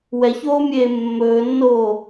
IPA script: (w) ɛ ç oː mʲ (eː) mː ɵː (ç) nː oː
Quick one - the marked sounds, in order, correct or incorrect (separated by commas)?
correct, correct, incorrect